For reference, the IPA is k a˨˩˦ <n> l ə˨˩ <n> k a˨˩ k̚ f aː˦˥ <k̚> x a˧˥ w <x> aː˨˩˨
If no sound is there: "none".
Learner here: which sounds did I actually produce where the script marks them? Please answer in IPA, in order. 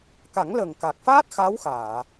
ŋ, ŋ, t̚, x

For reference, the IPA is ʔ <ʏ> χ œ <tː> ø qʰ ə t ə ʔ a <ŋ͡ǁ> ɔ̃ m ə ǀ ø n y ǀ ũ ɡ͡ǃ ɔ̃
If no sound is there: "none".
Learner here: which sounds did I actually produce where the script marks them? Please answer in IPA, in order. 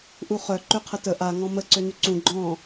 u, ǃ, ŋ

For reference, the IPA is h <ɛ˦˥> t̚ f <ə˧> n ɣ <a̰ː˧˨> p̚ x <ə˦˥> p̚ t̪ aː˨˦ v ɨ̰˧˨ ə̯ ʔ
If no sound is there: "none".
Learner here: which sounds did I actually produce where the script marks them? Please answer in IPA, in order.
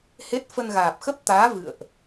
e˦˥, ə˧, aː˨˩, ə˦˥

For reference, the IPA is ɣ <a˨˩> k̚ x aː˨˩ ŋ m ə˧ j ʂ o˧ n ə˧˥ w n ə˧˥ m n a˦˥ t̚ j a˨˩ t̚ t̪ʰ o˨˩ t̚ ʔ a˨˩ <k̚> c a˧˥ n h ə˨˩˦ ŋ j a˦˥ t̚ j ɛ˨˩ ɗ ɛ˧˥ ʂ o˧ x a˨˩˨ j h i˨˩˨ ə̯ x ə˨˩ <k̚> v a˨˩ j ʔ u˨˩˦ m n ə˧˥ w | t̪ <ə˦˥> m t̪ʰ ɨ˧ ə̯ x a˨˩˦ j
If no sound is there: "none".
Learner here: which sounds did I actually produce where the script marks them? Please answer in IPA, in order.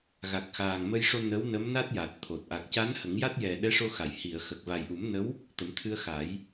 a˨˩, k̚, k̚, ə˨˩˦

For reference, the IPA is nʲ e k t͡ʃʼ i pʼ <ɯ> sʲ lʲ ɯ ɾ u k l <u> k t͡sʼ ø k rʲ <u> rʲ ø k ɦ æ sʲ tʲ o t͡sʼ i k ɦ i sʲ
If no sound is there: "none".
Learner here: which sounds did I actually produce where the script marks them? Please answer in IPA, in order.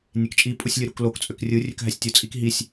u, o, ɯ

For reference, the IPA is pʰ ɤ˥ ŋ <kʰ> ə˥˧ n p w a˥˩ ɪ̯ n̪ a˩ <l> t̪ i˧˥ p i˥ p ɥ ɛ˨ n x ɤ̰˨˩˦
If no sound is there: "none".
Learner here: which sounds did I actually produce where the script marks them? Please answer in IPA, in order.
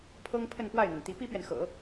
pʰ, n

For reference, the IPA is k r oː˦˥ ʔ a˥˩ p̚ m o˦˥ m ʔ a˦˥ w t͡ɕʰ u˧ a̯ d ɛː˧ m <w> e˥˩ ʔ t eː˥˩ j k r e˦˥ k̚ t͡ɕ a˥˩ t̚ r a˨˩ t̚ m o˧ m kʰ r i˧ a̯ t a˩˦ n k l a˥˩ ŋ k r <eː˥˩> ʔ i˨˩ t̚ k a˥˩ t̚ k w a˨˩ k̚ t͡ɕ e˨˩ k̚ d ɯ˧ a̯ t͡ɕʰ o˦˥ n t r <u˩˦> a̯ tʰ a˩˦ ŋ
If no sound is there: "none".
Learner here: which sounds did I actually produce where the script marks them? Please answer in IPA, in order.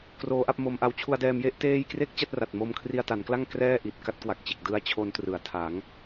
j, ɛː˥˩, ɯ˩˦

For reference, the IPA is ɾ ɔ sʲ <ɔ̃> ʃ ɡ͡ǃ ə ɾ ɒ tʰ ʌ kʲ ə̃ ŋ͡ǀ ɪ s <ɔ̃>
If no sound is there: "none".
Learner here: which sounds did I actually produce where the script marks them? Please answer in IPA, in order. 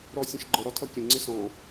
ə̃, ɔ̃

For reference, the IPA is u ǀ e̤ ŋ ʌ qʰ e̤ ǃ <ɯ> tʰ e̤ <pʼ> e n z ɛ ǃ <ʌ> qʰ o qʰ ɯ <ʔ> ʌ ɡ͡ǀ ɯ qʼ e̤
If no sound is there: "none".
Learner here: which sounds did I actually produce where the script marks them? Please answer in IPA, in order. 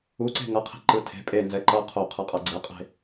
ɯ, pʼ, ʌ, qʼ

